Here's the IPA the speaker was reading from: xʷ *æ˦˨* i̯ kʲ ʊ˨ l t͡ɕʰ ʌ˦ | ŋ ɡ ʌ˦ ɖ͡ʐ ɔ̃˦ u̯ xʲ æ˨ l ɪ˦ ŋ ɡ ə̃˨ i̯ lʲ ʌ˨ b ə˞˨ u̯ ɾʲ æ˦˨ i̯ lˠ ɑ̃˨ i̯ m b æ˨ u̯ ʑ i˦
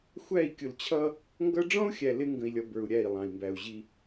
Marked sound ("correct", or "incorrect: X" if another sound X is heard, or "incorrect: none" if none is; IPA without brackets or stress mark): correct